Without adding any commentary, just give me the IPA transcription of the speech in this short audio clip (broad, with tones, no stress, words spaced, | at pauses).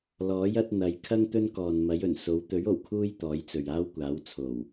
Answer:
lɔː˨˥jɐ˨˥t̚ n̪ɐ˨˧jkʰɐ˥ŋ t̪ɵ˥nkɔː˨nmɐ˨˥j ɵ˨˩n so˨˥w t̪ɵ˨˥ɥ o˨˩wkʰuː˥jt̪ɔː˨˥j t͡sɵ˨ɥaː˥wkʷaː˨˥wt͡sʰo˨˩w